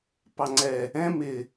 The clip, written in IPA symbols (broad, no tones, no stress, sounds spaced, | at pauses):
p ɑ ŋ͡ǀ ɛ | ɛ̃ m ɪ